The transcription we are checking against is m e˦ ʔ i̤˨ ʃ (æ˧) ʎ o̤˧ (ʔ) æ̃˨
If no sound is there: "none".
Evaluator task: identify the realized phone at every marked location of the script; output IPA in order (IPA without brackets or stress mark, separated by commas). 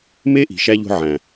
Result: æ˧, ʕ